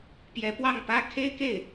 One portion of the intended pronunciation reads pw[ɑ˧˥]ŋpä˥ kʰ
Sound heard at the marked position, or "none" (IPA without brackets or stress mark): ɑ˥˩